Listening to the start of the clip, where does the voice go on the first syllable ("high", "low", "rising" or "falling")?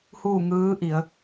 falling